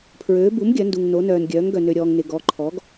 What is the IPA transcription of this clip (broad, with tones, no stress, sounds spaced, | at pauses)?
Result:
pʰ ɹ øː˩˥ b u˩˥ m ɡʲ œ˩˥ n d u˨ ŋ n o˩˥ n œː˨ n ɡʲ œː˩˥ ŋ ɡ œ˨ n ø˨ ɾʲ ɔː˨ ŋ n ɪ˨ ɡ ɔ˩˥ ǃʰ ɔ˩˥ ɡ